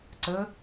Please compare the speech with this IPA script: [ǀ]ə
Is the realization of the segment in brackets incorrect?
no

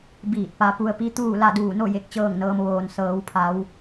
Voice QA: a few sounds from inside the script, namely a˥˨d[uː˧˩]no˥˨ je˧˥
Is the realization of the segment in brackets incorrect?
no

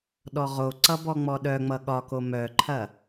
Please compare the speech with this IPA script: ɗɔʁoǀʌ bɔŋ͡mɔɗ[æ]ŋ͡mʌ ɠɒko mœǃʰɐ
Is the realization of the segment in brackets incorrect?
yes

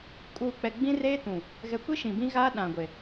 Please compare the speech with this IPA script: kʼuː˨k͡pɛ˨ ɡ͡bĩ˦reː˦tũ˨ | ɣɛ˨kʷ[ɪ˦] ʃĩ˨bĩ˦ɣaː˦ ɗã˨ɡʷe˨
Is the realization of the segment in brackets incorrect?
yes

